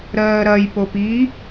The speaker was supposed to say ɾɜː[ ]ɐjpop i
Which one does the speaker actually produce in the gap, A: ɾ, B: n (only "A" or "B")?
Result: A